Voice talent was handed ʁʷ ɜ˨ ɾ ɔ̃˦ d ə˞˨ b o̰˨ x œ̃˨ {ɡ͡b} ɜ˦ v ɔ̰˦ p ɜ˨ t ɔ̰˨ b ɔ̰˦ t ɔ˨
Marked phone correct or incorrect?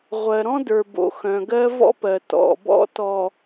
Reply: incorrect